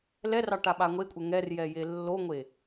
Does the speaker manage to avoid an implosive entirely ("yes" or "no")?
no